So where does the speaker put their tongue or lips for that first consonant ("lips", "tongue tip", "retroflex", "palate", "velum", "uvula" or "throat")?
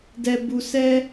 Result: tongue tip